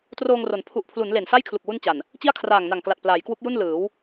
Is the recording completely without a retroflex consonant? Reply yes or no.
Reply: yes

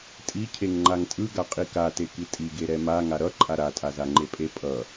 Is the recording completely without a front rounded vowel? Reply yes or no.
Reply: yes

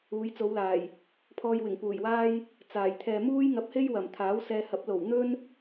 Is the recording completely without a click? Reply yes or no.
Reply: yes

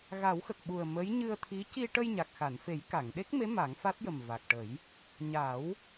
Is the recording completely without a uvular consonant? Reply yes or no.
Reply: yes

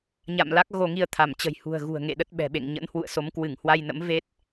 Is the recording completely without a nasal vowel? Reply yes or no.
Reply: yes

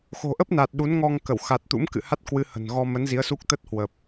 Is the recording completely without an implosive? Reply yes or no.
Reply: no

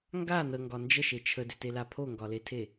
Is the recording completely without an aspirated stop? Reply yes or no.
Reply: no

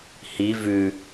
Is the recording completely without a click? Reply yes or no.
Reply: yes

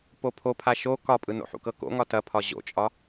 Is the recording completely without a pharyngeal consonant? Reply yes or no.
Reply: no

